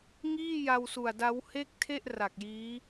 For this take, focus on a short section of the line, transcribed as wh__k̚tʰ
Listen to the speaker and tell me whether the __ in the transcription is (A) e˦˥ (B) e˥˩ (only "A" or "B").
B